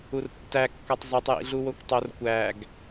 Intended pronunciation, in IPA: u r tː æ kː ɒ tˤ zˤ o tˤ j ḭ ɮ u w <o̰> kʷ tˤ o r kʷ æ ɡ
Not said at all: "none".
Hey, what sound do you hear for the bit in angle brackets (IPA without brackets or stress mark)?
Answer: o